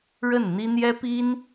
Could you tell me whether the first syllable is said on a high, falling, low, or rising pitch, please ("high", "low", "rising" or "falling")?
falling